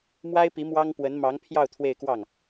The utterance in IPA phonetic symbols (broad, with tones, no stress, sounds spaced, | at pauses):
m w a˥ ɪ̯ p i˧˥ m w ɑ˥ ŋ p w ə˧˥ n m ɑ˧˥ ŋ pʰ j ɑ˥˧ ʊ̯ t̪ʰ w e˥˧ ɪ̯ k w ɑ˥˩ ŋ